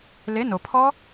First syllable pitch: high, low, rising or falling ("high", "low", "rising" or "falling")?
rising